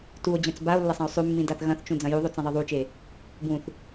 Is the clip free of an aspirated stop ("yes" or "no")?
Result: yes